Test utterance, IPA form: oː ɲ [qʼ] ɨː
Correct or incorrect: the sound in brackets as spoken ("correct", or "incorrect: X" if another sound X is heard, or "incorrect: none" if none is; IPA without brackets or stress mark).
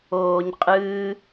correct